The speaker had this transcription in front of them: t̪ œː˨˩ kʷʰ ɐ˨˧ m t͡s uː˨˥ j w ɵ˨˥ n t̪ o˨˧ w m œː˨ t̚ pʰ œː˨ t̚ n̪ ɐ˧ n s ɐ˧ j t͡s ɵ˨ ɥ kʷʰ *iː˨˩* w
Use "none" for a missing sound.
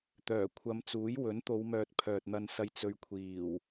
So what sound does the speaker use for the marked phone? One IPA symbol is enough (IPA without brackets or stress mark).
iː˨˩